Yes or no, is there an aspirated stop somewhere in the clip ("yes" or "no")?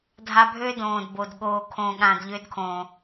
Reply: yes